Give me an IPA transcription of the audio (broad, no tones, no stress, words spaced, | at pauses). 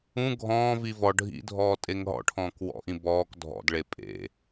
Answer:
ũ ɡʱɔ̃ːvi vɔ ɖʱḭdʱɔː tʼeŋɦɔ̰ʈʰɔ̃ːk wɔ̰ʔĩ bɔːk dʱɔ̰dɭe pʼḛ